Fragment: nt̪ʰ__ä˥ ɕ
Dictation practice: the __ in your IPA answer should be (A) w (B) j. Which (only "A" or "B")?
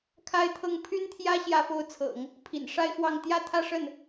B